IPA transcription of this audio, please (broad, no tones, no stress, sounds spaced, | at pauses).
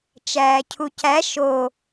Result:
t͡ʃ æː cʰ u c æ ʃ o